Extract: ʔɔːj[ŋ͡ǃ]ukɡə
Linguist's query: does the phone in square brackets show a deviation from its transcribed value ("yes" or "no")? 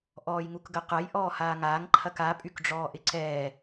yes